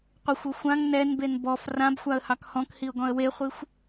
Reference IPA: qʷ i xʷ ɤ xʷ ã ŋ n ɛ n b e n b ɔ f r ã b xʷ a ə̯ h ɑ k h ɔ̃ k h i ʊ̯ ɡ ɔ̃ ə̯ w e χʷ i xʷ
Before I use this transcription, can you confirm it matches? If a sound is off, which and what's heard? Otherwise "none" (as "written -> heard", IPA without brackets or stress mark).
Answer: none